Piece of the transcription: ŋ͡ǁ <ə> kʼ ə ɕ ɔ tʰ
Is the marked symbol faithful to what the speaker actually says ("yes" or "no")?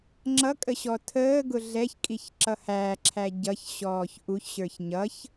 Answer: no